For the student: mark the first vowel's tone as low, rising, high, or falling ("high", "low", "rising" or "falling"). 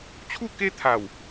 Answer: falling